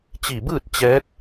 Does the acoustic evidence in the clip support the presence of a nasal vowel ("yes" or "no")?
no